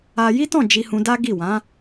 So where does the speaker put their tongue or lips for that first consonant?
palate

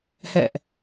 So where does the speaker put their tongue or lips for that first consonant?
throat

